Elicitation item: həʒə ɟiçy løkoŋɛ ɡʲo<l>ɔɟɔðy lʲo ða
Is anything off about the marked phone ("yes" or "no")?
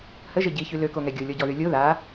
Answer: yes